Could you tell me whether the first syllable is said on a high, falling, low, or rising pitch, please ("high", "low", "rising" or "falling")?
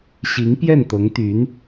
rising